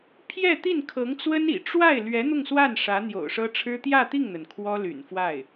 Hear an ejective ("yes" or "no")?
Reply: no